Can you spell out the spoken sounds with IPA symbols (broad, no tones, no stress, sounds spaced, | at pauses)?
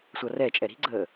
sʷ ʌ r ɛ t͡ʃʼ ɛ ɾ i̤ ɡ͡ǀ əː